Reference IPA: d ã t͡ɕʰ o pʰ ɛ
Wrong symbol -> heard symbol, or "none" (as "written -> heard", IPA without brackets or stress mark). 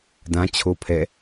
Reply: none